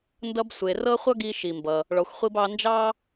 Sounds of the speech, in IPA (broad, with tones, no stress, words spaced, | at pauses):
ndʌ˧bsʷe˩ rɤ˥χʷʌ˥ɡi˧ ʃi˩mbʌ˩ | ɭɔ˩xʷχʷi˧b ɑ˧nd͡ʒɑ˥